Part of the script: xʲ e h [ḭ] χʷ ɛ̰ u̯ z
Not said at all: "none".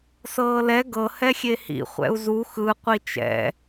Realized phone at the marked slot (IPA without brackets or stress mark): ḭ